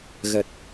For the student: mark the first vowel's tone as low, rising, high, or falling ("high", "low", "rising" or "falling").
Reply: low